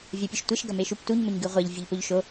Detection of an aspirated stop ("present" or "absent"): absent